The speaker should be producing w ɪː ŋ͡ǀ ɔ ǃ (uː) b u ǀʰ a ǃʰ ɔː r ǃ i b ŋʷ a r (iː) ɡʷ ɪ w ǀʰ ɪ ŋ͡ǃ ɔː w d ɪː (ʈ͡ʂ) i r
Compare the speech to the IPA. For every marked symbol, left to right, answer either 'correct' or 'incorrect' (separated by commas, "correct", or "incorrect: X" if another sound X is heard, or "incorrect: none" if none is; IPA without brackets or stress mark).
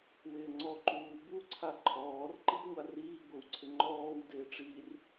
correct, correct, correct